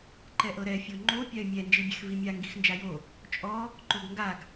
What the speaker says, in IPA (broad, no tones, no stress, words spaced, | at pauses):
ǃɛʔɤɾɛ fʲoŋ͡ǃo pʲae̯mʲɛ nd͡ʒibʲɛxvimʲa ŋɡixnd͡ʒajo | t͡ʃʼɔ | ǃoɡŋɡaɡ